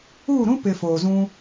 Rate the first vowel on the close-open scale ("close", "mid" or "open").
close